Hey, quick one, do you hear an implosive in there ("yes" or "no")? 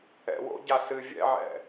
no